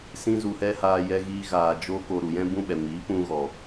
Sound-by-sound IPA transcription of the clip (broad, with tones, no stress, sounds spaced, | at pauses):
s ĩ˦ z u˧ h ɛ˦ h aː˧ j ɛ˧ ɣ iː˧ ɣ aː˨ d͡ʒ o˦ k o˧ ɾ u˨ j ɛ̃˦ b ũ˦ ɓ ɛ˨ m iː˨˦ p ũ˧ ɣ ɔ˨